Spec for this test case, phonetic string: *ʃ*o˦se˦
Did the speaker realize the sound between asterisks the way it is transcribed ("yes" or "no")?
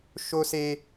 yes